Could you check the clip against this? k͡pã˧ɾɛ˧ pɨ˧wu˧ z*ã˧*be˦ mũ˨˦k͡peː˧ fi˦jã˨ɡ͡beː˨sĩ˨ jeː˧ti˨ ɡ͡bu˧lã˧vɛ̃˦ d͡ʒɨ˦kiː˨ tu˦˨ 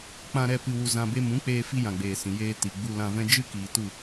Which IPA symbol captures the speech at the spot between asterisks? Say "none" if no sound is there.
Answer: ã˧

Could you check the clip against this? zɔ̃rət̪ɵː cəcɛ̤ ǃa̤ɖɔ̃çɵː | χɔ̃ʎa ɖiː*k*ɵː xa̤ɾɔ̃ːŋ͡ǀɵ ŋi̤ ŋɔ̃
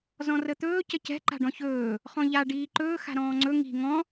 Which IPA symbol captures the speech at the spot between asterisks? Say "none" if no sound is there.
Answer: ǃ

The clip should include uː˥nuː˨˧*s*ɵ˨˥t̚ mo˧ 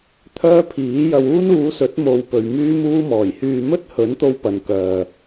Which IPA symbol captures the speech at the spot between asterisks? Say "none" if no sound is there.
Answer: s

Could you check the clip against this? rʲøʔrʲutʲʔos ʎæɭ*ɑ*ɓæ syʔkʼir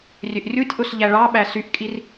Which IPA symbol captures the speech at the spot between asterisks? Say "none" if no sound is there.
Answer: ɑ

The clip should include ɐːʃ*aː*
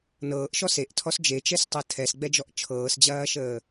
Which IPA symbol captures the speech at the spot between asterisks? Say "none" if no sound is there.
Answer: əː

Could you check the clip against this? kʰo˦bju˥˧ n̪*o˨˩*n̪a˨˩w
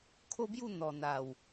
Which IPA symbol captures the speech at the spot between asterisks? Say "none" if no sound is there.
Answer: ɔ˨˩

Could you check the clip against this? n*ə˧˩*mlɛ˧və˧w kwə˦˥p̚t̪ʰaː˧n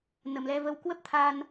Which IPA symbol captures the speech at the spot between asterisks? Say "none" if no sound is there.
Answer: ə˧˩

